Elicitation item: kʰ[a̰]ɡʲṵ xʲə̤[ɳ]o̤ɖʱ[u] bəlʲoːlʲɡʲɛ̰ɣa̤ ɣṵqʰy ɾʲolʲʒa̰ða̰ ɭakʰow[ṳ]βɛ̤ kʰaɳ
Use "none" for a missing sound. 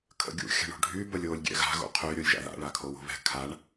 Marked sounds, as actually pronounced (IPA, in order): ə̰, ɳ, y, o̤

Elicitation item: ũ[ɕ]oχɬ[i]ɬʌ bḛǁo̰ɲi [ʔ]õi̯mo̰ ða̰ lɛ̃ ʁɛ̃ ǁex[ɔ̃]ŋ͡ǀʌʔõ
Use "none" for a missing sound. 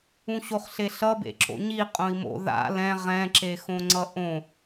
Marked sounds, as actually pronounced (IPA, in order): ɕ, e, qʼ, õ

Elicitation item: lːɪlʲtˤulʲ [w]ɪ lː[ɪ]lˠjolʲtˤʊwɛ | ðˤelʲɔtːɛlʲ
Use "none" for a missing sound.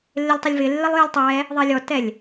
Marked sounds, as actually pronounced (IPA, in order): v, ɪ

